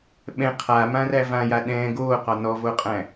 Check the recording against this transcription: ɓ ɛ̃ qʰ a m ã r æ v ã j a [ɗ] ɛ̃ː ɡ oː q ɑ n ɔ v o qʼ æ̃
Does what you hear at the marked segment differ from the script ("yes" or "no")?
no